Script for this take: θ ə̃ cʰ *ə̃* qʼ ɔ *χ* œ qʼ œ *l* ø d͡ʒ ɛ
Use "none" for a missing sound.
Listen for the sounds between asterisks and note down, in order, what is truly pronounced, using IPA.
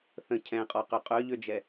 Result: ɛ̃, q, ʎ

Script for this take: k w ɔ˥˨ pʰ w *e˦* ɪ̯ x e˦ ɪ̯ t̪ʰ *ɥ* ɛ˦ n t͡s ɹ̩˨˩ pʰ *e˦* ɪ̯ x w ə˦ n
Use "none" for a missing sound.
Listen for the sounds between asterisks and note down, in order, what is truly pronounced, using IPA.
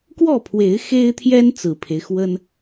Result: e˨˦, j, e˦

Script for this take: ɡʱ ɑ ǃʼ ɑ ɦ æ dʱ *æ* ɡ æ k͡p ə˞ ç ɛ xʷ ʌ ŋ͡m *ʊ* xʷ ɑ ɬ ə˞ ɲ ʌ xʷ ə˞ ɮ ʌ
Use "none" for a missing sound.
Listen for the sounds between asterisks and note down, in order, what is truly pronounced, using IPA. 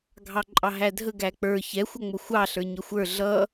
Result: ə, ʊ

